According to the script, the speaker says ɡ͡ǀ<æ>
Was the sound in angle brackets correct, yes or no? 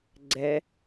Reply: no